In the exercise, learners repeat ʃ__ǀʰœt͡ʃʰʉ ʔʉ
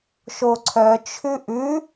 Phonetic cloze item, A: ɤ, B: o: B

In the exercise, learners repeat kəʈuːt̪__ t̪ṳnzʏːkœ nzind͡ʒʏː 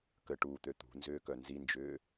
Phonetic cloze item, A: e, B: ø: B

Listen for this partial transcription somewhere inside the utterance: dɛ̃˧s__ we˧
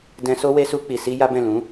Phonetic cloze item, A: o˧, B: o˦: B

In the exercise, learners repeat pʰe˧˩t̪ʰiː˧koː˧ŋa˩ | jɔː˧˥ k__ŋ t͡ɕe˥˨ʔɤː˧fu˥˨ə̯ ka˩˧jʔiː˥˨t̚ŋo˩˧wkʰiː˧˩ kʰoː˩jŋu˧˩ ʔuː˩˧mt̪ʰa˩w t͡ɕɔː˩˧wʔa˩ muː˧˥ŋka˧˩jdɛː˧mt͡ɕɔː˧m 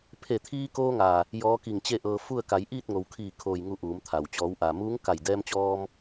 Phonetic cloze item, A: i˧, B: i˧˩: B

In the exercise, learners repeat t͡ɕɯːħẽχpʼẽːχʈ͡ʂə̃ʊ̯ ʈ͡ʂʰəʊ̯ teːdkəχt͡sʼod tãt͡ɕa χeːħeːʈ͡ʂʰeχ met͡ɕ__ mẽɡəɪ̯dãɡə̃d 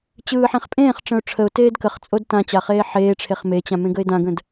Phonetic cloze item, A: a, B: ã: B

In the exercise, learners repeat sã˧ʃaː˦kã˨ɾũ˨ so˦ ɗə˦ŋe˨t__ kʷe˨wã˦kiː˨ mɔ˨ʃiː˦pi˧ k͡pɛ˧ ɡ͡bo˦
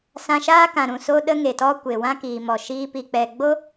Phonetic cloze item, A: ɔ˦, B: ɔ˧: A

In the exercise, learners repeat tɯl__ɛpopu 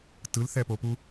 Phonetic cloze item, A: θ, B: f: A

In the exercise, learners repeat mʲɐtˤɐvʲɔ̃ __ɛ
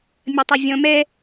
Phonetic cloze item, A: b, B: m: B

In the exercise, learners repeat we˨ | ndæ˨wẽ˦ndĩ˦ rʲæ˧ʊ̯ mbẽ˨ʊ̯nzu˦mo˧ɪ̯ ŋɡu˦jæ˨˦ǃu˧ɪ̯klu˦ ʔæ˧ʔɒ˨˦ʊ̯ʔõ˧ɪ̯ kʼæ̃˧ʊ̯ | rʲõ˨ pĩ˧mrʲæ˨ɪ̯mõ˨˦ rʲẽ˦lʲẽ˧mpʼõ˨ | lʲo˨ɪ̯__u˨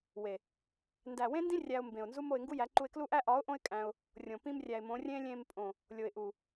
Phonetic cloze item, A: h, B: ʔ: B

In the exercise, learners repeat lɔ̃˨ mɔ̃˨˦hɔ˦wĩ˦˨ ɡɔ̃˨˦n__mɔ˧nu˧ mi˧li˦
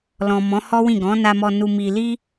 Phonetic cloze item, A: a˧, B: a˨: A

